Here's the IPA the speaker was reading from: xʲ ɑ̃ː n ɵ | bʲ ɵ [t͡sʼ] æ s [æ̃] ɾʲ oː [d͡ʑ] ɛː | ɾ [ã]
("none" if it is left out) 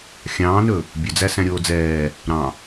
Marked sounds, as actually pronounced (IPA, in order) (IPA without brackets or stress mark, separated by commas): d͡z, æ̃, d͡z, ɑ̃